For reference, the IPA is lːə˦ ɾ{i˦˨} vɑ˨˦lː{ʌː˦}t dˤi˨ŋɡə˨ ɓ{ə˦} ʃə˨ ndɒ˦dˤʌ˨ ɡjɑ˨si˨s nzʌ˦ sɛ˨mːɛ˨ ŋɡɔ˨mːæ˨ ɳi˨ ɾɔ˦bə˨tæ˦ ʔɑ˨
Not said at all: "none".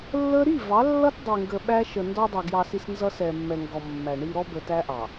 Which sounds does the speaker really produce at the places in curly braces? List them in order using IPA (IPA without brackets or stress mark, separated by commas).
i˦˨, ʌ˦, æ˦